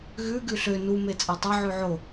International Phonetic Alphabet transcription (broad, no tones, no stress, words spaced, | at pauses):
ɣʉ ɡʉɬø nu met͡sʼɑtˤe ʕʉʕo